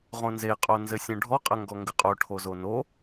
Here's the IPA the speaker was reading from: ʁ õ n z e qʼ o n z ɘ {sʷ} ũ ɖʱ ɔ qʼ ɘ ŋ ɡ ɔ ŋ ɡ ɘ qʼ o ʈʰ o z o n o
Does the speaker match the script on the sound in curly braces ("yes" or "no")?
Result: no